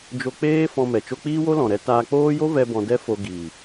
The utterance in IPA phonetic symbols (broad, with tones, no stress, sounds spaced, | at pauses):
d͡ʒ o˧ k͡p eː˦ f ɔ̃˧ m ɛ˨ t͡ʃ o˧ k͡p iː˦ w o˦ l ɔ̃˨ ɾ ɛ˧ t aː˧ k͡p oː˦ j o˦ v ɛ˧ b ɔ̃˧ d ɛ˦ f o˧ ɡ i˨